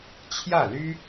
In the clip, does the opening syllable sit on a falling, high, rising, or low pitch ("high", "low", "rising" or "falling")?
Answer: falling